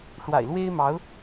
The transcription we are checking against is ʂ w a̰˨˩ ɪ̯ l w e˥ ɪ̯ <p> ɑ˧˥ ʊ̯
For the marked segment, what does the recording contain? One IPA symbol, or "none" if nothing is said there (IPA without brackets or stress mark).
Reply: m